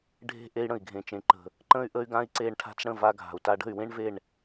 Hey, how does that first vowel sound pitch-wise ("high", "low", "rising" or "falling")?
high